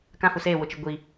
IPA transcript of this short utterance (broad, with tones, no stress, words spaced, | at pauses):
kã˦hu˨seː˦˨ wʊ˨t͡ʃɪ˨ ɡʷi˨